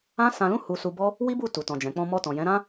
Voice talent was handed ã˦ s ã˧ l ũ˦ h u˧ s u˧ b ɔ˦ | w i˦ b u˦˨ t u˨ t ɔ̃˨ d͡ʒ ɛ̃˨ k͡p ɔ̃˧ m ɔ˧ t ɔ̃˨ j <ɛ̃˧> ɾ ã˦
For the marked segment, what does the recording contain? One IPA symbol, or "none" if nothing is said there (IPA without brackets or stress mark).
ɛ̃˨˦